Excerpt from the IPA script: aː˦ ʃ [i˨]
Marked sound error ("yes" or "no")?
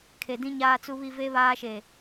yes